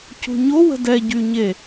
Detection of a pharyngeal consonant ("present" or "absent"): absent